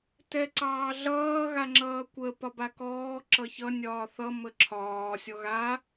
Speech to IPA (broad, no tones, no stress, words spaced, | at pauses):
tɛǀɑːɮʌː ɣaŋ͡ǁʌːkʷə pɒbakɔː ǁʌçʌ nʲɒːθʌ məǁʰɒː sʲɔɣa